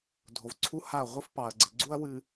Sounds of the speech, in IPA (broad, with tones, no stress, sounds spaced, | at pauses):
dʱ o˨ v ǀʰ u˦ h a˦˨ ɐ̯ ʁʷ ɨ˦ f p ɑ˨ ɐ̯ ɡ͡ǀ ɪ˨ ɡ͡ǀ u˦ ɐ̯ w ɨ˨